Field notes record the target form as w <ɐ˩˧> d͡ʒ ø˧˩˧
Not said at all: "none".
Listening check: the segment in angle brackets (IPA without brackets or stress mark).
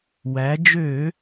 æ˩˧